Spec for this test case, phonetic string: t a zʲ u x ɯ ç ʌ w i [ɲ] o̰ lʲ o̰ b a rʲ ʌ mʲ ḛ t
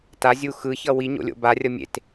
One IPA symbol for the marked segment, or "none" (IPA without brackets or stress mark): ɲ